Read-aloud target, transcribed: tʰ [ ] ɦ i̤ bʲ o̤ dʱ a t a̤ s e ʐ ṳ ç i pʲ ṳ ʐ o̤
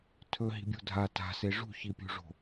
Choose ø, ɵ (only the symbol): ɵ